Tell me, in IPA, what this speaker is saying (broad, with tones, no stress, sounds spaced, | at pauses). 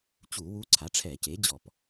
t͡ɕ u˧˩˧ w u˧˥ ǀʰ a˩˥ ʈ͡ʂʰ ɛ˧˩˧ c e˩˥ d͡ʑ ɔ˧˩˧ p